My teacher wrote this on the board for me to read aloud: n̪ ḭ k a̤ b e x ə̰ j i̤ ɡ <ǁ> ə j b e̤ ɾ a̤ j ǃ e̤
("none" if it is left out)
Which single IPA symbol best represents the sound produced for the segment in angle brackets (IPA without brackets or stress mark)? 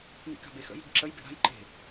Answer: ǁ